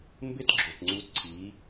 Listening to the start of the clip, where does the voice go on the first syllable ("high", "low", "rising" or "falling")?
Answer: high